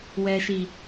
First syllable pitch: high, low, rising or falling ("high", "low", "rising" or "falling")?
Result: low